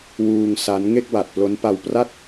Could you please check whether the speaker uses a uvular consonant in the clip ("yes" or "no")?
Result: no